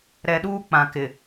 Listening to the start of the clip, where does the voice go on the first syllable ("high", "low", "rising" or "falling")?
low